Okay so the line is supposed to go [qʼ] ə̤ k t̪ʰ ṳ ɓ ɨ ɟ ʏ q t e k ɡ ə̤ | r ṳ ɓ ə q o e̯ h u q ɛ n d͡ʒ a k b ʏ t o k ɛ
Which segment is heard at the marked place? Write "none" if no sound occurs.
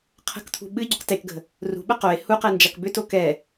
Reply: qʰ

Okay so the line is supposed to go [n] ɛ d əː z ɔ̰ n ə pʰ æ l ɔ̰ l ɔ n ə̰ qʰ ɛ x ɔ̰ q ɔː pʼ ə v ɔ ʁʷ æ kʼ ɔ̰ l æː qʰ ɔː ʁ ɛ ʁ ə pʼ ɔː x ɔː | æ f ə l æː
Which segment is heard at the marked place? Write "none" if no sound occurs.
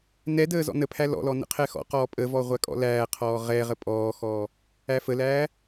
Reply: n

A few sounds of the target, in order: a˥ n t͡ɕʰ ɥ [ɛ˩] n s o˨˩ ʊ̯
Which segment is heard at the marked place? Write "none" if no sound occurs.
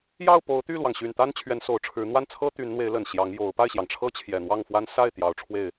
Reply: ɛ˧˥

